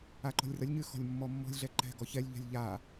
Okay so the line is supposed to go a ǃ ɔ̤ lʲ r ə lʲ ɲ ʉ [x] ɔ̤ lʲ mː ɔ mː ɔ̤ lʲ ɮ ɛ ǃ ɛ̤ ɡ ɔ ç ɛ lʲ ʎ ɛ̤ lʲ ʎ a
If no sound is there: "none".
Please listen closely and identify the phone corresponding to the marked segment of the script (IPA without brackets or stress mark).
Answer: x